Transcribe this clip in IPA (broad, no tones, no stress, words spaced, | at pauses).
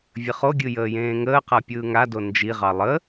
vʲəχoɡʲɯ jəːjẽːŋəːqa pʲɯːŋado nd͡ʒiʁɑ lˠə